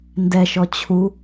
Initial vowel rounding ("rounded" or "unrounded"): unrounded